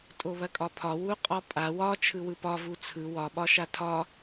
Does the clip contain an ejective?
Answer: yes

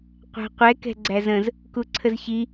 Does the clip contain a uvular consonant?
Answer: yes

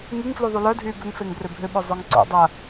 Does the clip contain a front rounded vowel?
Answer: yes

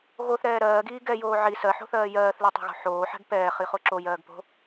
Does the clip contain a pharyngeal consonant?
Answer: yes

